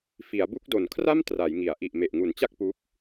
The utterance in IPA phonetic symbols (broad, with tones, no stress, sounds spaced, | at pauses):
f i˩˦ a̯ b u˦˥ k̚ d o˨˩ n kʰ r a˥˩ m t r a˩˦ j ŋ i˩˦ a̯ ʔ i˨˩ ʔ m e˨˩ ʔ ŋ u˨˩ n t͡ɕ a˥˩ k̚ p u˦˥ k̚